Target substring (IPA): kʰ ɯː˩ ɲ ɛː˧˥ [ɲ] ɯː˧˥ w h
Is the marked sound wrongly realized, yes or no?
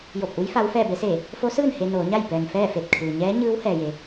no